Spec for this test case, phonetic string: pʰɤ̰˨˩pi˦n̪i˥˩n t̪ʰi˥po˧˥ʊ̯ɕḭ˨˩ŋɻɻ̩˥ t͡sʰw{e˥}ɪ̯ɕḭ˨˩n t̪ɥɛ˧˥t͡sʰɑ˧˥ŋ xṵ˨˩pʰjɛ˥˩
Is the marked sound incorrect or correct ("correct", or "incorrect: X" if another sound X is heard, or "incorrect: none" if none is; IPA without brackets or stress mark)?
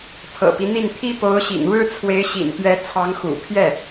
incorrect: e˧˥